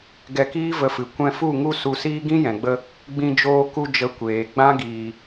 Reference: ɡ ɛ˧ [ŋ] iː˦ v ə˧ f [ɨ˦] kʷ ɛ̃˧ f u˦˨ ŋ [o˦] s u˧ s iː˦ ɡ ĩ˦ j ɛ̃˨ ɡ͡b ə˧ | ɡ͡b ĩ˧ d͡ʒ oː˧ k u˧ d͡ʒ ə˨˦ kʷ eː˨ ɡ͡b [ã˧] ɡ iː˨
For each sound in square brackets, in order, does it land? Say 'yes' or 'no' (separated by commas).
no, no, no, no